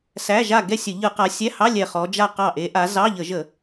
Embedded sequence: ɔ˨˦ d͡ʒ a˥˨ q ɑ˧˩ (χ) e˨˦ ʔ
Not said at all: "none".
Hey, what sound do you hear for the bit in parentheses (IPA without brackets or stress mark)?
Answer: ʔ